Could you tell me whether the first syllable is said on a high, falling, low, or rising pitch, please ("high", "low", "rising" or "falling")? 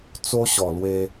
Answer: high